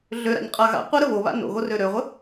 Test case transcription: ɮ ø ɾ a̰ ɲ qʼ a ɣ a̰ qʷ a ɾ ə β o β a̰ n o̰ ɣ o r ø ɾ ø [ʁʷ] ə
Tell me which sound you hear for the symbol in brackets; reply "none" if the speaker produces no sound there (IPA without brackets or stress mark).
ʁʷ